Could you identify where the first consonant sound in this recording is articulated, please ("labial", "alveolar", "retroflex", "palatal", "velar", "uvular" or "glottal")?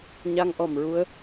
palatal